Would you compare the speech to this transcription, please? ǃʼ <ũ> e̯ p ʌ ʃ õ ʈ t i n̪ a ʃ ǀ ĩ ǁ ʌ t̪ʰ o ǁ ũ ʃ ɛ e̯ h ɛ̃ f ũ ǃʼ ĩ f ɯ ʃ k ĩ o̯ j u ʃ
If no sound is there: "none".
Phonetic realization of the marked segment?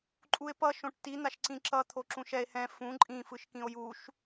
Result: u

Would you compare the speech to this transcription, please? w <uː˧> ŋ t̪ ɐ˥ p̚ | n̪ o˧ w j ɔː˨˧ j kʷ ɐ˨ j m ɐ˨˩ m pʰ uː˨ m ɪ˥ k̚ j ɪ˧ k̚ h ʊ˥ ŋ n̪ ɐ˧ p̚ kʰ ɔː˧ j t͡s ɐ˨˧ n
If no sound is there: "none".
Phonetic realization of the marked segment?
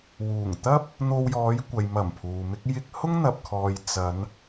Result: uː˨˩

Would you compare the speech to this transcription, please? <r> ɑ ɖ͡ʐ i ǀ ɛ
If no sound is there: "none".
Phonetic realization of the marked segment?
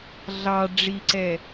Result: ɮ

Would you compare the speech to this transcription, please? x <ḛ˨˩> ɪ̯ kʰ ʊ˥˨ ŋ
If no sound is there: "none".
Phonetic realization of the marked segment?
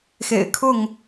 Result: ḛ˨˩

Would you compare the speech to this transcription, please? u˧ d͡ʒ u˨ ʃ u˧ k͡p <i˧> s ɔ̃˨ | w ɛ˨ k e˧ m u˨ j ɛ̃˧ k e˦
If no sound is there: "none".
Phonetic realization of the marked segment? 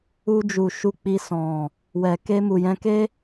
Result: i˧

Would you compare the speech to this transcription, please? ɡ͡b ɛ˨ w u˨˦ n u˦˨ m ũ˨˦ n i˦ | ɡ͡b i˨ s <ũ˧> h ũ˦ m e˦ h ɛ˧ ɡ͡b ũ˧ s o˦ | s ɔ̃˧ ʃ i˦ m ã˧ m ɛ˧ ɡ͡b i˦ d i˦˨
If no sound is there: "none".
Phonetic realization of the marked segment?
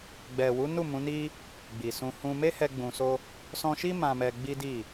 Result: ũ˧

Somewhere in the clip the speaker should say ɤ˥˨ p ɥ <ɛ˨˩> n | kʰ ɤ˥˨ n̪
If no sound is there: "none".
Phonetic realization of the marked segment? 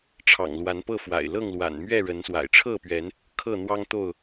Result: ɛ˨˦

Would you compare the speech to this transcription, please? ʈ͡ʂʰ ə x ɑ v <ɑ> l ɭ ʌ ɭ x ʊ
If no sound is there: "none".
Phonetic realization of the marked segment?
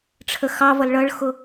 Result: ʌ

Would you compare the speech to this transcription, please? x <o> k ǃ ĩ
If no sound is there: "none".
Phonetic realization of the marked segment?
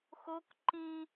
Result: o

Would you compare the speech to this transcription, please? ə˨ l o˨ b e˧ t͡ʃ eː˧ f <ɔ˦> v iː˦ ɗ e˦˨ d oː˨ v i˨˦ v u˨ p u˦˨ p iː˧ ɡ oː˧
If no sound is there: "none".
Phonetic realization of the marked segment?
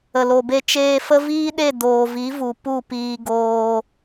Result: ə˦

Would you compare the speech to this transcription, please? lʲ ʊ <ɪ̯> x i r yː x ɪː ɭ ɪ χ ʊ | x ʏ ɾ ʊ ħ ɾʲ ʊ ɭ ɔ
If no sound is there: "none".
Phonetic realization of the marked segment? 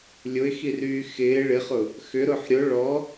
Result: ɪ̯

